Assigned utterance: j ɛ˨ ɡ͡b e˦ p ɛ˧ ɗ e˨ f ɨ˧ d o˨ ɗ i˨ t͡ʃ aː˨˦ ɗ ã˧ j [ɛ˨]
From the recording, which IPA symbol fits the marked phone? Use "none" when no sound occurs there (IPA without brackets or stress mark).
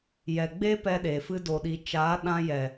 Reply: ɛ˨